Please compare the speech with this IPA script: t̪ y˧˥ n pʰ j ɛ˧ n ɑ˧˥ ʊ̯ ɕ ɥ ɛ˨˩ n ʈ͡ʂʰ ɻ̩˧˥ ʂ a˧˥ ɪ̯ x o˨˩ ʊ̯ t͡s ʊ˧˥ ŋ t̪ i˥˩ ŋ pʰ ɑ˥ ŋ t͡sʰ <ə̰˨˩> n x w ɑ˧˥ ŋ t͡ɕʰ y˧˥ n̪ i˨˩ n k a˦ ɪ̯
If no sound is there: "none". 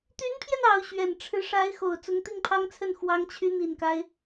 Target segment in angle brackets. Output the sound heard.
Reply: ə˥˩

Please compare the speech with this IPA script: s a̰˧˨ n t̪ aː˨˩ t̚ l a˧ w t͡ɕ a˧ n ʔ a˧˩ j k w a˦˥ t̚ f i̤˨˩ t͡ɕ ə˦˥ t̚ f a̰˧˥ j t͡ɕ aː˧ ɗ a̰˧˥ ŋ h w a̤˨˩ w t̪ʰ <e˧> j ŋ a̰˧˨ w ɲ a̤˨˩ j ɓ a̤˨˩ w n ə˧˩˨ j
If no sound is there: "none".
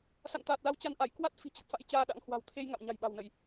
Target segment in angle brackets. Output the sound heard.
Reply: e˧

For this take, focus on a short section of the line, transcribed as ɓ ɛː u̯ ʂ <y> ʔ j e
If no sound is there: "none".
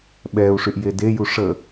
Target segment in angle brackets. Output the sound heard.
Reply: y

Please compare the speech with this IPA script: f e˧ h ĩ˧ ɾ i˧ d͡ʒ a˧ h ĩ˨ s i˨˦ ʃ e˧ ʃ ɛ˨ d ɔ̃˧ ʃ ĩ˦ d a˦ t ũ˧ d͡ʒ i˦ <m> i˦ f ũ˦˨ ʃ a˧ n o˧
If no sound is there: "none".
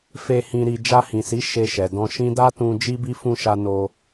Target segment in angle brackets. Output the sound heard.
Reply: b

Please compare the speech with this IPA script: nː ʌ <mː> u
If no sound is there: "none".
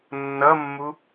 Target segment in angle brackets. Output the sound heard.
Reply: mː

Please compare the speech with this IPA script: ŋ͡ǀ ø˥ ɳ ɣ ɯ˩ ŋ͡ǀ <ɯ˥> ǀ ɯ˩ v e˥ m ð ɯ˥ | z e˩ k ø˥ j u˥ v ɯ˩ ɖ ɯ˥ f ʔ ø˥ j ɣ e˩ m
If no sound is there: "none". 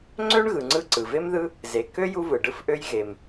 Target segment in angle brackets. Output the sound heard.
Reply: ɯ˥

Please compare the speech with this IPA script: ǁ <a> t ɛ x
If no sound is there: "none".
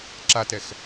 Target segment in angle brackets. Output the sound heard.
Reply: a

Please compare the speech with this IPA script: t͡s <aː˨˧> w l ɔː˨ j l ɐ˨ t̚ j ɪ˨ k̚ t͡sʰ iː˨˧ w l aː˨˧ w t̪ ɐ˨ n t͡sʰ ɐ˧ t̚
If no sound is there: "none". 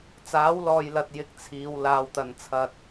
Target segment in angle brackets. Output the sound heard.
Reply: aː˨˥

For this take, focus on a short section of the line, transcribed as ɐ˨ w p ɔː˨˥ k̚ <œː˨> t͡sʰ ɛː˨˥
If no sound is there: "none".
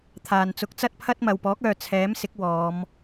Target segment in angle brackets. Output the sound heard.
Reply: œː˨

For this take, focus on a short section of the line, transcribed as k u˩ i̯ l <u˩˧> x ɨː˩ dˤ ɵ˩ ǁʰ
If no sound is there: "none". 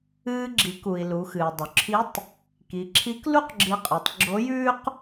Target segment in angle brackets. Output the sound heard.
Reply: u˩˧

